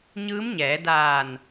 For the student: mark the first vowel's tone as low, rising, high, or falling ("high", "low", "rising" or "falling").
rising